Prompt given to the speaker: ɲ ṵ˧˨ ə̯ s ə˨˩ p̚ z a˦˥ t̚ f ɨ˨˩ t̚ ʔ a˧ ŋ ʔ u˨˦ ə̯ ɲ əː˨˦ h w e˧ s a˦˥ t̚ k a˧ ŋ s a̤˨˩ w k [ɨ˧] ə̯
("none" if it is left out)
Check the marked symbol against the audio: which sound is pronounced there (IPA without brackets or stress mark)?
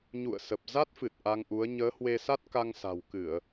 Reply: ɨ˧˩˨